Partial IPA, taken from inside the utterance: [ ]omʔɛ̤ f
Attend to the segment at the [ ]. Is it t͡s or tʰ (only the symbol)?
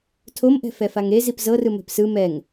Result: tʰ